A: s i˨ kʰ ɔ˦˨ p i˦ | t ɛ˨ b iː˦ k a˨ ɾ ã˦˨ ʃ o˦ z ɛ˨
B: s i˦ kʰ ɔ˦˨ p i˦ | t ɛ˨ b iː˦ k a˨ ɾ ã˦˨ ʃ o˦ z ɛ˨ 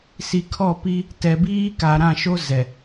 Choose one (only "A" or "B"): A